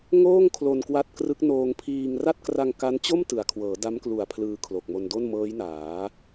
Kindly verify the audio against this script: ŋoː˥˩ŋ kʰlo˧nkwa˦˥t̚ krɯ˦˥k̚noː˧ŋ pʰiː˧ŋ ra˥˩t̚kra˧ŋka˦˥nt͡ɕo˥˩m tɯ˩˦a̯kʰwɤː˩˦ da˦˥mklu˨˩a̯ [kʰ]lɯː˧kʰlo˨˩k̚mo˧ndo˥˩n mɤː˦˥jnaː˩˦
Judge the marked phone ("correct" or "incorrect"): incorrect